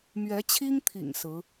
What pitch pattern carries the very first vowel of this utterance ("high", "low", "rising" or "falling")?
rising